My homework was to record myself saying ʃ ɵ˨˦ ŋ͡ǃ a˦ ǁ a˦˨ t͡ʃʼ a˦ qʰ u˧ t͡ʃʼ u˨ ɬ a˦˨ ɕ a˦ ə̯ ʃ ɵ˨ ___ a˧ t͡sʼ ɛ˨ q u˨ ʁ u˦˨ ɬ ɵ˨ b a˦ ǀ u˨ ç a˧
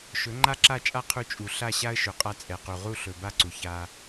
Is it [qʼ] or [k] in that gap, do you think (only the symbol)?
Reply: qʼ